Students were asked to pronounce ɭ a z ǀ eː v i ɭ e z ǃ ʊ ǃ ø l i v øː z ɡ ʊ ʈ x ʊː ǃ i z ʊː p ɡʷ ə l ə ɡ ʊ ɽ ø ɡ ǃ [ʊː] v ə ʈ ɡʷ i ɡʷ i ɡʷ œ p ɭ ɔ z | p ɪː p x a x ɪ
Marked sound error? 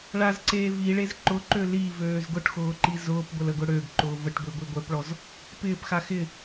no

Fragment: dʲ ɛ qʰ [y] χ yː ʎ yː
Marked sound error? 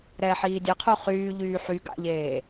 yes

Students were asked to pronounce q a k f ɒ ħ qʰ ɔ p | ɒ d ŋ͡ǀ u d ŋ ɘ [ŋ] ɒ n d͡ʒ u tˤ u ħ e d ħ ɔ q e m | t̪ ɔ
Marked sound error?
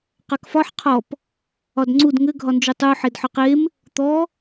yes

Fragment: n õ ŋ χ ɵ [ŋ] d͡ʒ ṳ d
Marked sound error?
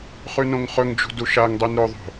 no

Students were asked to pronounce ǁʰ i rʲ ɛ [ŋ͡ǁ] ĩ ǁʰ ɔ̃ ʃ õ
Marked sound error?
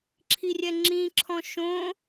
no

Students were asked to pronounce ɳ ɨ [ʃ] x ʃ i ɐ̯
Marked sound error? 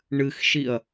yes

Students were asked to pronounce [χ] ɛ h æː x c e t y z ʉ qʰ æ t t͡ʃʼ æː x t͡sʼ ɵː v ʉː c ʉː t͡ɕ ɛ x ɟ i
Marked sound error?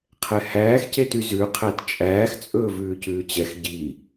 yes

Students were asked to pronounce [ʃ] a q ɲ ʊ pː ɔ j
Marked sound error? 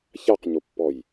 yes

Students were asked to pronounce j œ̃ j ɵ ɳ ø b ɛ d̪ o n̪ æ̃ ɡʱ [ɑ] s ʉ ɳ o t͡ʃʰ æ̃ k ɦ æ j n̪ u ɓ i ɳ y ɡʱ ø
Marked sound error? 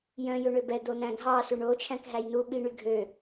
no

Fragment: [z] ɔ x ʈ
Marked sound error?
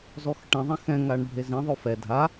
no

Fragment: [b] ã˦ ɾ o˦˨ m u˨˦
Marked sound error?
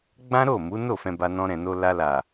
yes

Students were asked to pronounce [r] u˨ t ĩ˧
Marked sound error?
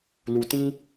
yes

